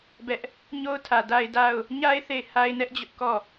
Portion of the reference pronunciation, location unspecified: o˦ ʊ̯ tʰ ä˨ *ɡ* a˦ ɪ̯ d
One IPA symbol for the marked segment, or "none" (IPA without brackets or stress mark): d